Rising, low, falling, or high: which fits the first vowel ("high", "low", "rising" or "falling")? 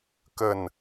falling